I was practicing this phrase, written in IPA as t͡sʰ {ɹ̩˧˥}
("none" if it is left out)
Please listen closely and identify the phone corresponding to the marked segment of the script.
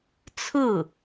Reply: ɹ̩˥˩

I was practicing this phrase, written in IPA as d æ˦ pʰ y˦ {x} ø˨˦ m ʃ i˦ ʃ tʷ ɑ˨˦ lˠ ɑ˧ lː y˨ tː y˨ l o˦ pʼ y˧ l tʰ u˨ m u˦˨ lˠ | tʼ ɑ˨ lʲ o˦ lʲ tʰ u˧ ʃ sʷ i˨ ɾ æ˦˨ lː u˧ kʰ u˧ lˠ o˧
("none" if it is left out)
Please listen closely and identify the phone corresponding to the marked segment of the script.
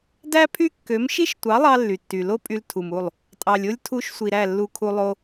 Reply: kː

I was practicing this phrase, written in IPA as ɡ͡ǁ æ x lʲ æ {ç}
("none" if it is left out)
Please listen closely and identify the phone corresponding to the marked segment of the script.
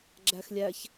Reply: ç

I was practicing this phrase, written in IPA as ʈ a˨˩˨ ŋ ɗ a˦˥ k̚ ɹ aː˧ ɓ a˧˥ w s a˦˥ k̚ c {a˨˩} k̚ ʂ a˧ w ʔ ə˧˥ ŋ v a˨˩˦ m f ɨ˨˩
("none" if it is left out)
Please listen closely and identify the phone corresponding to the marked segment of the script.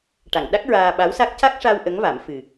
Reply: a˦˥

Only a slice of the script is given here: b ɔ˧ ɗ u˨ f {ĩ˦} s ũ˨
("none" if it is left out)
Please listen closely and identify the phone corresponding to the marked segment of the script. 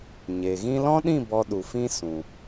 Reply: ĩ˦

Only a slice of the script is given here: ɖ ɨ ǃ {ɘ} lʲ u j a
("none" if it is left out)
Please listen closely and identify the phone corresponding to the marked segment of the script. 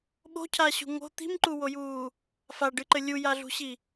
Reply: ɘ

